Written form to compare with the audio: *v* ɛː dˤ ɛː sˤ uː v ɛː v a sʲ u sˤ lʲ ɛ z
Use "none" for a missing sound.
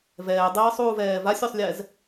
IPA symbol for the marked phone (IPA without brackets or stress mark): v